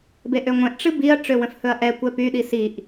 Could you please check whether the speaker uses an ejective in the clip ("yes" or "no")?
no